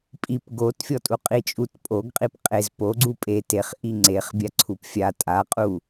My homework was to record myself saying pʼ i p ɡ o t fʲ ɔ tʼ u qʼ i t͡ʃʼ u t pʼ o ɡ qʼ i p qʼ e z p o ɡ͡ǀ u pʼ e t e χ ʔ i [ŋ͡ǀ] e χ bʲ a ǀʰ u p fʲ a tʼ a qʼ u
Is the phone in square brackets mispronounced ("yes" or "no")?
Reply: no